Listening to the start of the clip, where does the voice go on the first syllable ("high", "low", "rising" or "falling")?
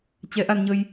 rising